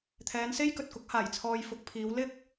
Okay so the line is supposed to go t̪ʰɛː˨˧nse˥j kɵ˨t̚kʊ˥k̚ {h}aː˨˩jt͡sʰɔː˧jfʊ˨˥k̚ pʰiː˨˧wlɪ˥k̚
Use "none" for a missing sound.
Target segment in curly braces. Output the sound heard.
h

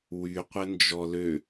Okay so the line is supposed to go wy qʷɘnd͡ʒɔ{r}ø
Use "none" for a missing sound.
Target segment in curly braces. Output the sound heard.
l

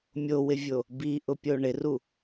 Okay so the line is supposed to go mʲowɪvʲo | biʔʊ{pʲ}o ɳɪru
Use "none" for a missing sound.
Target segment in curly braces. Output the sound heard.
pʲ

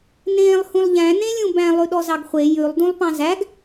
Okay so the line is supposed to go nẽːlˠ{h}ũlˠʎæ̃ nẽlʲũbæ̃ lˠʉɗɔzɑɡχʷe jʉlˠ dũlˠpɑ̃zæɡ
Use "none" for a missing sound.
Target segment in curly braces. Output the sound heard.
h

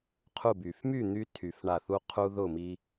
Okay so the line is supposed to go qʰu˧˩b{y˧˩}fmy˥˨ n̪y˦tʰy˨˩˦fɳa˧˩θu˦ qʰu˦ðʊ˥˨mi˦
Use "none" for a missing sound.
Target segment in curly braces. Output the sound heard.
y˩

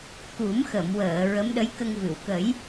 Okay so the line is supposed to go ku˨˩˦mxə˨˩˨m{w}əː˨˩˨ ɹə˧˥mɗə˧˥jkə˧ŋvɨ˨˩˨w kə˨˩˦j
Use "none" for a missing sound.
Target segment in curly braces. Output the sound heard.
w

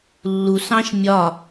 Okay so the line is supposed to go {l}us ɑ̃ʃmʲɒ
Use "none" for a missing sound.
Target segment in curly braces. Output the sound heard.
lː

